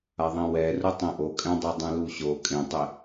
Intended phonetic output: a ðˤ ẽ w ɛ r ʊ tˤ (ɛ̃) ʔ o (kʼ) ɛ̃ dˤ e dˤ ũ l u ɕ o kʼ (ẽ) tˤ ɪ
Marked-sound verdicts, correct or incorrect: incorrect, correct, correct

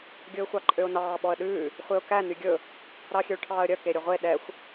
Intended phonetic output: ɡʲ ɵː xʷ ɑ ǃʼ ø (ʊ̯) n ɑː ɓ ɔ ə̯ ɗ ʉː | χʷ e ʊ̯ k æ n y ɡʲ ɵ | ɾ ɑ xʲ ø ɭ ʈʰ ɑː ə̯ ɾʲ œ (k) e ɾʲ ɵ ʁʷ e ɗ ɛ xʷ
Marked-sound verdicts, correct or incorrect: correct, correct

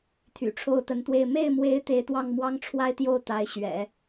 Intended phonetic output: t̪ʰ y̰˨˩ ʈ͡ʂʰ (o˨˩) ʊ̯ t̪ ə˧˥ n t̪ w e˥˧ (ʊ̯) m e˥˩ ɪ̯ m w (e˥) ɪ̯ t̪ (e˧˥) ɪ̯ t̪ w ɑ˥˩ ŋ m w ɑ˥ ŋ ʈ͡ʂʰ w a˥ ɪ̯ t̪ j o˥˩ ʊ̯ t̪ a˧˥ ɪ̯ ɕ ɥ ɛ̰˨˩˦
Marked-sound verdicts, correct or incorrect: incorrect, incorrect, incorrect, correct

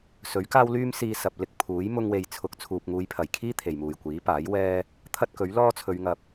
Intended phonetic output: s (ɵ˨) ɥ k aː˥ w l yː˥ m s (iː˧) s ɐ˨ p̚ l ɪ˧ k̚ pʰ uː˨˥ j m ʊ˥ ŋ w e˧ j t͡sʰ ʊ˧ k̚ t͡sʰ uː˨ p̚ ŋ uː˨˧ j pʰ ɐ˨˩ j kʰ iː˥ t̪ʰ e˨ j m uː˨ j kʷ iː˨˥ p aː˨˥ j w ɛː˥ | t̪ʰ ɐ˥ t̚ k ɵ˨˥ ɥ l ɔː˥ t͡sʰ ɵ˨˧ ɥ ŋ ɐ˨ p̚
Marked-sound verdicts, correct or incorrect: incorrect, correct

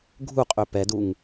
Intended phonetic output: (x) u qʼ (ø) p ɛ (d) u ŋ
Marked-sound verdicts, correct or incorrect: incorrect, correct, correct

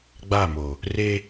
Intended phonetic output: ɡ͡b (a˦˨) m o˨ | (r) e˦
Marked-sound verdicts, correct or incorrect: correct, correct

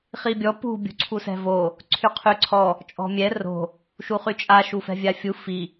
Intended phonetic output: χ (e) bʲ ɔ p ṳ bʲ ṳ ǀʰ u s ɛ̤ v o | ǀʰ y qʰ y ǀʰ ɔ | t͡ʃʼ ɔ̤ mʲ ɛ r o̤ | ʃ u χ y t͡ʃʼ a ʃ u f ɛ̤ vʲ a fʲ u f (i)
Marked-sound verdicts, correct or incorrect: incorrect, correct

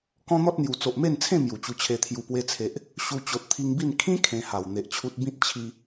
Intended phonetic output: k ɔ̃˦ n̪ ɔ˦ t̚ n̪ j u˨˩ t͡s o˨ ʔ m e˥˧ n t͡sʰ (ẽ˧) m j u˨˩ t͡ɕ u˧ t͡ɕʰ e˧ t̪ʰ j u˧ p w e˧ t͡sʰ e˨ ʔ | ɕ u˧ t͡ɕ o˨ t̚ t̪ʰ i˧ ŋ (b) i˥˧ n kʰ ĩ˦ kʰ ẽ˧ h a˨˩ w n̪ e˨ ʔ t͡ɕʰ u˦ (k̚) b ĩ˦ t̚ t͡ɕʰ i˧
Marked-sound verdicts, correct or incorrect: incorrect, correct, incorrect

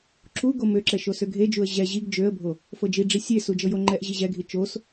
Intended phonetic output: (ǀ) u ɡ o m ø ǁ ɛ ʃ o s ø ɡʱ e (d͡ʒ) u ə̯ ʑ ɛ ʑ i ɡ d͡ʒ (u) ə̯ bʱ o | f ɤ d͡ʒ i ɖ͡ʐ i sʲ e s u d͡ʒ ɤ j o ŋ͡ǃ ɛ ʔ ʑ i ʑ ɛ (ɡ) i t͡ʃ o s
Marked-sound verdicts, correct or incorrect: incorrect, correct, incorrect, incorrect

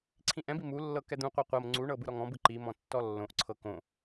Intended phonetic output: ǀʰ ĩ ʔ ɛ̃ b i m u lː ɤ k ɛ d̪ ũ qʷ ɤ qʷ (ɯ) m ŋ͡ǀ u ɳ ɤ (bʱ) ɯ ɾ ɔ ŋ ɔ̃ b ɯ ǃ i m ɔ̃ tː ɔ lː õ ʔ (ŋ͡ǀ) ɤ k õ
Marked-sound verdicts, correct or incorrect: incorrect, incorrect, incorrect

